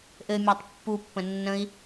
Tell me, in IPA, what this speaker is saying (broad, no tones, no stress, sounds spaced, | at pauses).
ʔ ɘ mʲ a tˤ pː u pː ə̃ nː ə̃ i̯